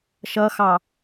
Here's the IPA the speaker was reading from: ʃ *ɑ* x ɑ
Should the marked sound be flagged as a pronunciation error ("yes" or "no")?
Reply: yes